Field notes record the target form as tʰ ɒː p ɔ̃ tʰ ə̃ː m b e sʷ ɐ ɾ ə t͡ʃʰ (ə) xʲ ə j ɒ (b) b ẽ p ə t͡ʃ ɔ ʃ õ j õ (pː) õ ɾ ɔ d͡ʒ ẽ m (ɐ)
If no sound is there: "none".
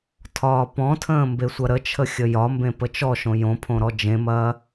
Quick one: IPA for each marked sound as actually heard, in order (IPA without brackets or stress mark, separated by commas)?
ə, m, pʰ, ɐː